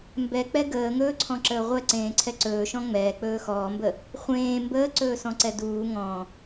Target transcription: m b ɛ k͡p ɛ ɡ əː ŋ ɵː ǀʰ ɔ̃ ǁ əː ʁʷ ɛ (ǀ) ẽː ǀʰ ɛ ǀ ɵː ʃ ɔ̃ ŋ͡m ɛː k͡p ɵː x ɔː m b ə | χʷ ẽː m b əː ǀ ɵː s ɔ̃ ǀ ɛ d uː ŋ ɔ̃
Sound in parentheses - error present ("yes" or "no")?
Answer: no